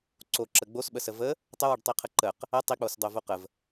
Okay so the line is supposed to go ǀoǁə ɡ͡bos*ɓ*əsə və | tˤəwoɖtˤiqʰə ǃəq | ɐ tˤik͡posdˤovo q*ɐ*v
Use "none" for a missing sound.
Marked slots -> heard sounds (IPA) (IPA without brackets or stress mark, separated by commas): ɓ, ə